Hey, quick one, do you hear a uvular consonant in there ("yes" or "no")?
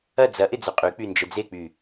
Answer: yes